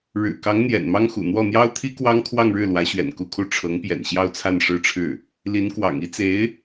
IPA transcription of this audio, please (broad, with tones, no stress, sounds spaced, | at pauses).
ɻ ɻ̩˨˩ k ɑ˧˥ ŋ n̪ j ɛ̰˨˩ n m ɑ˥ ŋ x ṵ˨˩ n̪ w ɔ˥˩ n̪ j ɑ˥ ʊ̯ t̪ʰ i˥ k w ɑ˥ ŋ kʰ w ɑ˥˧ ŋ ɻ ɻ̩˥˩ l w ä˧˥ ɕ ɥ ɛ̰˨˩ n k u˥˧ kʰ u˥˩ ʈ͡ʂʰ ɤ˧˥ ŋ p j ɛ̰˨˩ n ɕ j ɑ˥˧ ʊ̯ t͡sʰ a˥˧ n ʂ ɻ̩˥˧ ʈ͡ʂʰ ɻ̩˥˩ | l i˧˥ n k w ɑ̰˨˩ ŋ i˥ t͡s e˧˥ ɪ̯